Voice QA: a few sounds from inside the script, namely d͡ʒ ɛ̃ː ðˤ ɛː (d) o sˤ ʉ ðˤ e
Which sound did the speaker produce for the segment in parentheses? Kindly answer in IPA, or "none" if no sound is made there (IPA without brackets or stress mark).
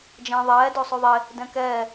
d